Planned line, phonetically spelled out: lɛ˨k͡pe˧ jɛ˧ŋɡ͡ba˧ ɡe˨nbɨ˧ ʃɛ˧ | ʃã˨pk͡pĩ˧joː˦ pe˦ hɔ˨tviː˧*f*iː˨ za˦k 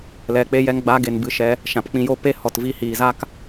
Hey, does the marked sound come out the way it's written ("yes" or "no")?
no